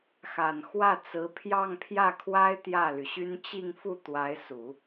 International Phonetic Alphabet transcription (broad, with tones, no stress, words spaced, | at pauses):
xa˨˩nxwä˥˩t͡sɹ̩˧˥ pʰjɑ˥˧ŋpʰjä˥˩kʰwa˥ɪ̯ t̪jä˥˩ly˩ɕy˥n t͡ɕi˥˧ŋfu˥˩ t̪wa˧˥ɪ̯su˨˩˦